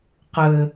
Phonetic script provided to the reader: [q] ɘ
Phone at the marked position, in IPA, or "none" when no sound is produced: q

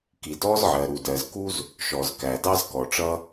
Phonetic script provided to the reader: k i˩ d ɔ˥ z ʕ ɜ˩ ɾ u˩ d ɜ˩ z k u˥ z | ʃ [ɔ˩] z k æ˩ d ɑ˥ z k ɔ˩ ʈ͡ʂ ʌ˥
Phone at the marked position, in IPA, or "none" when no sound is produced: ɔ˩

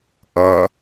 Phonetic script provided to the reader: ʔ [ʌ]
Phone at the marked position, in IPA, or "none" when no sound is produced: ʌ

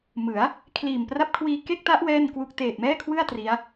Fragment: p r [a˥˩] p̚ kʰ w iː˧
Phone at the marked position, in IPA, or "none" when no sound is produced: a˥˩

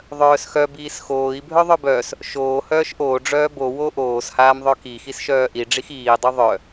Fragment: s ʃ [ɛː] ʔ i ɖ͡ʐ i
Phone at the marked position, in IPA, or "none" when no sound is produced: œː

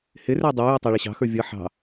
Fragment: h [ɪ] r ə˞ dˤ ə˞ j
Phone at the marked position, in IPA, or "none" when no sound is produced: ɪ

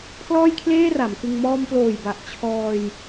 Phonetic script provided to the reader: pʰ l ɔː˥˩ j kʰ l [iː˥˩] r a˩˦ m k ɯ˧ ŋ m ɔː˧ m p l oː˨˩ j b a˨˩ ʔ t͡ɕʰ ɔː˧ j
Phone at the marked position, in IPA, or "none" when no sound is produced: eː˥˩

